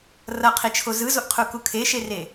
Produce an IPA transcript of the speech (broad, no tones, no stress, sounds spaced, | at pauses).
r ʌ qʰ i t͡ʃʰ o z ɯ z o ʔ qʰ u k u kʰ e ʃ e r e